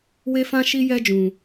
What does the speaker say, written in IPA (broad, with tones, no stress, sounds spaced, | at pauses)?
w e˦ f ã˦ ʃ i˦ j ɛ˦ d͡ʒ ũ˧